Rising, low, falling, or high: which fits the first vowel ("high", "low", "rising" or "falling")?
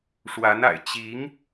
rising